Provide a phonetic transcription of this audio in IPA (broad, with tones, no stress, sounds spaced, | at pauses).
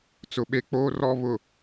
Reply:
t͡s ʊ˨ ɓ e˦ k͡p oː˦ r ɔ˦ β ʊ˨